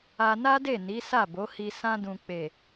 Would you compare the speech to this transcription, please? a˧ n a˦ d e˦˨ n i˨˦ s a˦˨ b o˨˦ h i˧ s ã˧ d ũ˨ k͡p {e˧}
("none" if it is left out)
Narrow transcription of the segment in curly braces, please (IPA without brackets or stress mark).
e˨